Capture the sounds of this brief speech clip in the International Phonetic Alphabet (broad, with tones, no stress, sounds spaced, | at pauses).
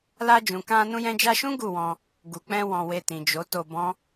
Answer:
l a˧ d͡ʒ ũ˨ k ã˧ n ũ˧ j ɛ̃˧ d͡ʒ a˧ ʃ ũ˦ ɡ u˦˨ w ɔ̃˧ | ɡ u˨ k͡p ɛ̃˧ w ɔ̃˧ w e˧ t ĩ˨ d͡ʒ o˨˦ t o˧ b ɔ̃˦